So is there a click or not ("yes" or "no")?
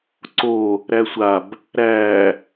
yes